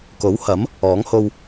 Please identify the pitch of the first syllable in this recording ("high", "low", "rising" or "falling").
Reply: rising